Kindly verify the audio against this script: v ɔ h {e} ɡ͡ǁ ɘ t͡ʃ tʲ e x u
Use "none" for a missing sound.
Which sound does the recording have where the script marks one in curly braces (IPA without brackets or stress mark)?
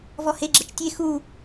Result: e